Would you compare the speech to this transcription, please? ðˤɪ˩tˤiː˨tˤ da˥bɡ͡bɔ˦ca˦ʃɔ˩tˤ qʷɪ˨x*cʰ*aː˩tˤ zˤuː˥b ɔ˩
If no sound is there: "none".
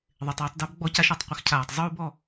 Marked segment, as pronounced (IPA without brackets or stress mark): cʰ